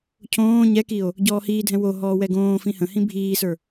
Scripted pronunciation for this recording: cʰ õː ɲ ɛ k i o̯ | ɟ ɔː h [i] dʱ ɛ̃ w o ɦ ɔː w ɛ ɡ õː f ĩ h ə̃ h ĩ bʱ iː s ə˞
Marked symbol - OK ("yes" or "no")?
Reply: no